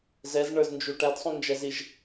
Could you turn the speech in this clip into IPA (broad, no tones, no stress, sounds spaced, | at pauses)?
z ɛ z ɳ ə˞ z n d͡ʒ u ʈ æ d sˤ ũ n d͡ʒ ɛ z i ʒ